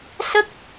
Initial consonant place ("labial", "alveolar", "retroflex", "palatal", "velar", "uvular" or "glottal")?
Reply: alveolar